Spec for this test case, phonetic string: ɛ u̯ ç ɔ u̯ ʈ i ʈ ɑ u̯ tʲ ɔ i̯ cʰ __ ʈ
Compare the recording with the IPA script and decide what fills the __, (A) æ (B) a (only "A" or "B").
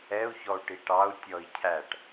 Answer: A